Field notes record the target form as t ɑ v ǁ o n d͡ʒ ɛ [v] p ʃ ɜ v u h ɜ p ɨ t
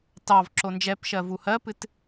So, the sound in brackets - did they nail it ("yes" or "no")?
no